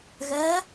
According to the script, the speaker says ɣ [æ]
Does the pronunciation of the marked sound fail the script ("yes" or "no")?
yes